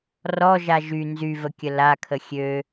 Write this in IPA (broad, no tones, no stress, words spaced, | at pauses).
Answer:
rɔʒa ʒy nzyvəkʲə lakʰə xʲø